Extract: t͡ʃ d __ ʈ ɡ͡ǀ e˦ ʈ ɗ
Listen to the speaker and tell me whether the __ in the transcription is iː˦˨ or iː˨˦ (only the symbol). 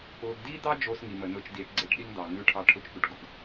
iː˨˦